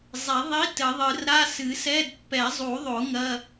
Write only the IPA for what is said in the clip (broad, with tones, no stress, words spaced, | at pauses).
zˤe˨˩˦ðˤi˧˥˧ tɘ˨˩˦ðˤɨ˨˩˦r ɾa˧˥˧sɨ˨˩˦sɛ˧˥˧d pːɛ˨˩˦zˤu˨˩˦ðˤo˨˩˦ ŋɐ˧˥˧